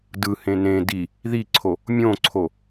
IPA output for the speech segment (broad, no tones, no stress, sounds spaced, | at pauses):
d ɯ h ẽ n ẽ d i | ð i ǀʰ o | mʲ õ ǀʰ o